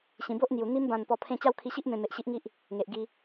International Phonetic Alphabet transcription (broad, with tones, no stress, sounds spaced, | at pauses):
ɕ ĩ˨˩ b o˦ ʔ n̪ j u˨˩ n̪ i˧ m b ã˨˩ n p ɔ˧ pʰ ẽ˥˧ t͡ɕ a˥˧ w kʰ i˧ ɕ i˦ ʔ m ẽ˨˩ m e˨ ʔ ɕ i˦ ʔ ŋ i˦ ʔ | ŋ e˨ ʔ ɡ i˧